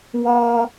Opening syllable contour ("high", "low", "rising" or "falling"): high